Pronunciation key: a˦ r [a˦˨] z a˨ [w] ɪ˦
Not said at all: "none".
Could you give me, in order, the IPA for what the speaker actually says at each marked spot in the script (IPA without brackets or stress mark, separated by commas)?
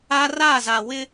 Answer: a˦˨, w